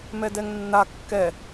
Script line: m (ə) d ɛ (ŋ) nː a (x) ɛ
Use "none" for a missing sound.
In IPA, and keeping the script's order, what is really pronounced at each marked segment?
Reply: ɛ, ŋ, kː

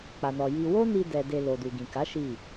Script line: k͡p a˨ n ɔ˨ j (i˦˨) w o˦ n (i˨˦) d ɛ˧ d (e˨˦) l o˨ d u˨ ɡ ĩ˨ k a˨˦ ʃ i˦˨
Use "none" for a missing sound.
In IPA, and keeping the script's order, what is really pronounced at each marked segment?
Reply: i˧, i˧, e˧

